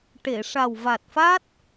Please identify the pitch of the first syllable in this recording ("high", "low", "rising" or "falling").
low